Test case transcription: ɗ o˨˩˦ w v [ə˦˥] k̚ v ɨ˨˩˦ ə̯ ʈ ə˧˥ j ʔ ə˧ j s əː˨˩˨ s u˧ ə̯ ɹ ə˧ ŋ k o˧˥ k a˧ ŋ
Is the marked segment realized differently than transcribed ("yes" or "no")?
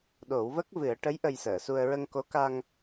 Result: no